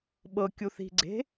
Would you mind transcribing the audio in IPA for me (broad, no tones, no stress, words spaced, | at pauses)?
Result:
ɓɤkʲu θi̤ ɡ͡ǀe̤